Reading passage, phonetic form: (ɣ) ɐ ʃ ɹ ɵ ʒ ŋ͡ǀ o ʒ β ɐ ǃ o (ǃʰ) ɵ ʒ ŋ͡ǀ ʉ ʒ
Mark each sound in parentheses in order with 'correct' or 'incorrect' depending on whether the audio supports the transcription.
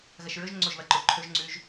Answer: correct, correct

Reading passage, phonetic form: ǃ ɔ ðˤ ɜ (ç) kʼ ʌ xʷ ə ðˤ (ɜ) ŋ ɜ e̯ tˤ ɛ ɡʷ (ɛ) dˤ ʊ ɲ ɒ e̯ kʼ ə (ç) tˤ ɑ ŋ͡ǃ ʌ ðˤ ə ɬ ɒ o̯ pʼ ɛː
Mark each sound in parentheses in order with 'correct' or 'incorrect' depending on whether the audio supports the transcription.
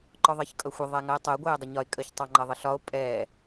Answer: correct, incorrect: æ, incorrect: ɛː, correct

